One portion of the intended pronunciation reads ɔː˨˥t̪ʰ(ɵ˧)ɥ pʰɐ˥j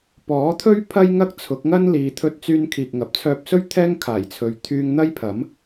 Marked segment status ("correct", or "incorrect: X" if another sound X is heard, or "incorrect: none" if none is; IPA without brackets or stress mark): incorrect: ɵ˥